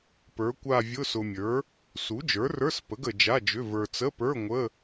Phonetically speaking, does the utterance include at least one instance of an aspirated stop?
no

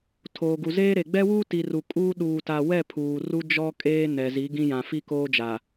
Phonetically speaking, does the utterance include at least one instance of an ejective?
yes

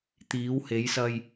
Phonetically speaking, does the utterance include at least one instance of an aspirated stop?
no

